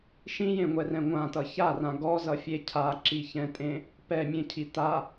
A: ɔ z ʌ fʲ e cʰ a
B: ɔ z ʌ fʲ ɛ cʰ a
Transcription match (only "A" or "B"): A